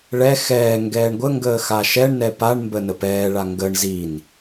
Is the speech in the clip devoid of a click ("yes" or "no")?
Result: yes